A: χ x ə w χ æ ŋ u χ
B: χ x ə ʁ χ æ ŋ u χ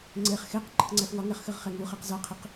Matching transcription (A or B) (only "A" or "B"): B